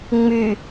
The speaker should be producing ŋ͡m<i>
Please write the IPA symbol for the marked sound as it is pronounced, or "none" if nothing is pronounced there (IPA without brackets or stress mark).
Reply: y